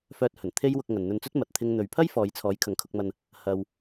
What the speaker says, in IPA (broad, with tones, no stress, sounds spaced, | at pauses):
f œː˧ t̚ h ɵ˨˩ n t̪ʰ e˥ j w ʊ˧ k̚ ŋ ɐ˨ n n̪ ɵ˧ n t͡s ɵ˥ t̚ m ɐ˨ t̚ t̪ʰ ɪ˧ ŋ n̪ ɵ˨ ɥ pʰ ɐ˥ j f ɔː˨˧ j t͡sʰ ɔː˨˥ j kʰ ɐ˨˧ ŋ kʰ ʊ˧ k̚ m ɐ˧ n | h ɐ˧ w